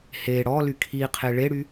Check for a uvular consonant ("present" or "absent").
present